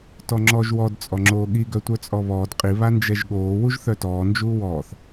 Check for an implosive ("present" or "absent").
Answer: present